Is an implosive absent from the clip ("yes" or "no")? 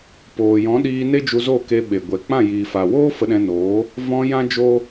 no